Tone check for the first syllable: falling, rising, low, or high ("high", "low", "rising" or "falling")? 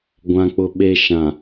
low